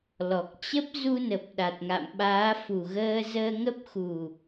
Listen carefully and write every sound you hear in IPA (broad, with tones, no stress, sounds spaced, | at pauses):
l ɔ˨˩ k̚ t͡ɕ ə˦˥ p̚ z u˧ n ə˨˩ p̚ ɗ a˨˩ t̚ ŋ a̰˧˨ m ɓ aː˨˦ f u˨˩ ɣ əː˧ z əː˧ ŋ ə˦˥ p̚ x u˨˩